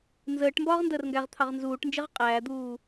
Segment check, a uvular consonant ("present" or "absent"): present